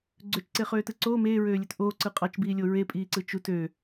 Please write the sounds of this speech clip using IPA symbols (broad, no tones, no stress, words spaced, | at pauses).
ɡ͡ǀøt͡ʃǀeχøːtɯ ǀoː meːɹøːlʲøt ʔoːǀɯ qʼɑt͡ʃbiːlʲo ɹepʼiːǀɯ t͡ʃut ø